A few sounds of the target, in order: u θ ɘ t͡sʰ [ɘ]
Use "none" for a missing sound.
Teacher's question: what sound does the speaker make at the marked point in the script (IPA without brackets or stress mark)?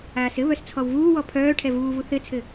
ɘ